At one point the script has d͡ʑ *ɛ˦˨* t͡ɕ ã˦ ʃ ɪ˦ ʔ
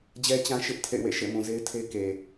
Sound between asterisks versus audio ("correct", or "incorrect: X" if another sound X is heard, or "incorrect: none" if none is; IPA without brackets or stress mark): incorrect: ɛ˦